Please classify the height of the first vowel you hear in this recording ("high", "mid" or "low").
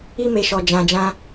high